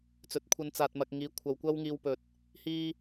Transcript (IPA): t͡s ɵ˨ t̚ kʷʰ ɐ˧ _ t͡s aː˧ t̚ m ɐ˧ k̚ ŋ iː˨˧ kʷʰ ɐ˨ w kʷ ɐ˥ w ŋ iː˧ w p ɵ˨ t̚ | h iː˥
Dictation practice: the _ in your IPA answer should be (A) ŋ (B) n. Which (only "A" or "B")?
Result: B